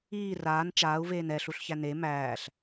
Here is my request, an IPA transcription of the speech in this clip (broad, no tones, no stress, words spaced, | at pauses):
iː raːn t͡ʃaːu̯veːn ɛɬuɬçæ ne mæːɬ